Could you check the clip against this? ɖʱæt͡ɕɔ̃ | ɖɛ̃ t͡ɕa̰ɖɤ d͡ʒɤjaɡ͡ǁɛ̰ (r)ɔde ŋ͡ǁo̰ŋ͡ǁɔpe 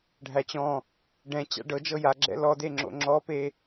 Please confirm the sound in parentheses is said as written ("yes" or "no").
no